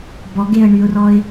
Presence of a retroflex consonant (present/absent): present